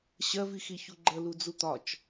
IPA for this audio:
ɕɜvixiçu ɡ͡ǃəlud͡zu t̪ɒt͡ʃ

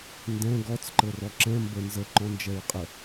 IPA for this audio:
ndɛ̃ ɡɔt͡s ǃɤrɔǁɛ̃ mbə nzə ǃɔ̃nd͡ʒɛɹqʼə

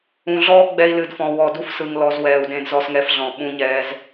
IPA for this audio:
ũ˨ɮɔː˦ ɡ͡bɛ˧i̯lɨ˨dfɔ̃˨ wɔ˨du˧fsɯ˨ŋlɔ˨z wɛː˨u̯dẽ˧d zɔ˧sŋɛ˧fɮɔ̃˨ ɓũ˧ɲɛː˧z

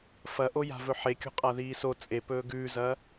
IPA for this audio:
fɐʔoja̤ vɵħekʲo̤qʼa ðiːso t͡sʼepɵː ɡʉːzɐː

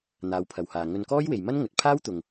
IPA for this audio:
n̪aː˨˧wpʰɐ˨whaː˨ ŋɵ˧nkɔː˥jwe˨j mɐ˥nŋɵ˨t̚pʰaː˥wt̪ʊ˨ŋ

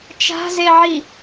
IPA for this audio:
t͡ʃa̤zeʕi

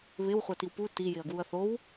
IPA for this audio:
βɪw χʷatiwpu ti jɪɐ̯ɡwuɐ̯θow

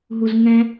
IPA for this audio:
ɦuzŋɛ̃

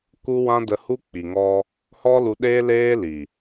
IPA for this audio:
ku˦ wã˦də˧hu˦ k͡pi˨ŋɔ˧ | hɔ˦ lu˧ɗeː˦ leː˦ li˨

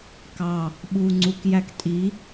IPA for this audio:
kɑ | ɓuːŋ͡ǀuk jæktʼi

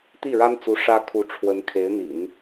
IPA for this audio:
t̪i˥˩ɻa˥nt͡su˧˥ ʂä˥ kʰu˧˥ʈ͡ʂʰwə˧˥n kʰe˧˥ɪ̯n̪ḭ˨˩˦n

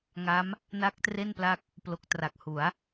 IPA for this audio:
ŋa˦˥m | na˦˥k̚tre˥˩npla˦˥k̚ | plo˨˩k̚tra˨˩k̚hu˩˦a̯

